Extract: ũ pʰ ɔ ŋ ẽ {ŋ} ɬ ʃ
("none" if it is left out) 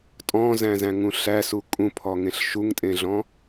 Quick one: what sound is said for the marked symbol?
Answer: none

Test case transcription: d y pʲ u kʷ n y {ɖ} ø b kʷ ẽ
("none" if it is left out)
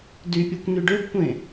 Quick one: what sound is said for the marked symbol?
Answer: ɖ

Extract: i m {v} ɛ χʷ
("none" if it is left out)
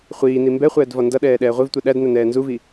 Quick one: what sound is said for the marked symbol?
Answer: b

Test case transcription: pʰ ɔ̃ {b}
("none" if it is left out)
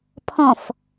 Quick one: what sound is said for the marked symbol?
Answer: f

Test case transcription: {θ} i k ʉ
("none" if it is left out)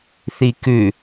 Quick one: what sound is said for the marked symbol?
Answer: θ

